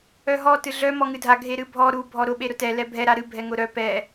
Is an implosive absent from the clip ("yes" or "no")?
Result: no